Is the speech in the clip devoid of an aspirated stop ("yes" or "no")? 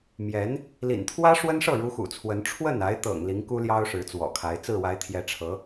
no